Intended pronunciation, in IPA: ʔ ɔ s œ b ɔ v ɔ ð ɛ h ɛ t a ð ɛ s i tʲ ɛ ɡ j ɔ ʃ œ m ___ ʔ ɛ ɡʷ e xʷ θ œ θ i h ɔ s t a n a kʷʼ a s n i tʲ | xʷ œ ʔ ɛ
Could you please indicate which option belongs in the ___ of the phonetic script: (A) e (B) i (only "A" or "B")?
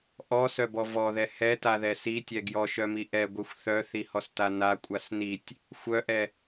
B